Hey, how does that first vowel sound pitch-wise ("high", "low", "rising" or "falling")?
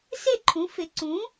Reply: falling